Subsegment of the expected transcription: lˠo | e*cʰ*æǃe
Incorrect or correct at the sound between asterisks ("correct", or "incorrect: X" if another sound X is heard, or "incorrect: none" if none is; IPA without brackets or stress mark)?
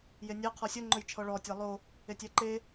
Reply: incorrect: tʲ